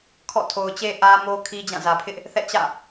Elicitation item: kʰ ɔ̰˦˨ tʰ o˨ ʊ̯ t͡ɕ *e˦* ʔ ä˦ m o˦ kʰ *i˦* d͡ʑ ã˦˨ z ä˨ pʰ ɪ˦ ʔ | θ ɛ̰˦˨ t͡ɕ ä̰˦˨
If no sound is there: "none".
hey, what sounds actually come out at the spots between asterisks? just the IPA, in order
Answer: e˦, i˦

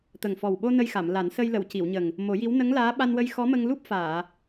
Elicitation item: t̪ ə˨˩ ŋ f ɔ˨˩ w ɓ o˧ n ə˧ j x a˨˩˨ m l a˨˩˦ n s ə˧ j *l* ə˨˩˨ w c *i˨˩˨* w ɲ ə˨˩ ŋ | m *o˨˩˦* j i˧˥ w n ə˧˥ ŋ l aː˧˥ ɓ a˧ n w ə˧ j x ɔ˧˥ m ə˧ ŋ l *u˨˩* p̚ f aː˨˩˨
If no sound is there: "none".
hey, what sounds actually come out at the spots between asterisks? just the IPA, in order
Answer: l, i˨˩˨, o˨˩˦, u˦˥

